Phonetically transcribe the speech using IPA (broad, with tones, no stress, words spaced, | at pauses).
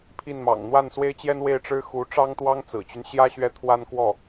pʰi˥˩nmɑ̰˨˩ŋ n̪wa˥˩nswe˥ɪ̯t͡ɕjɛ˥n we˥˩ɪ̯ʈ͡ʂɻ̩˥ xu˧˥ʈ͡ʂɑ˥ŋt̪wɑ˥ŋ t͡sɹ̩˨˩t͡ɕy˦nɕjä˥ ɕɥɛ˥t̪ʰwa˥n kwɔ˥˩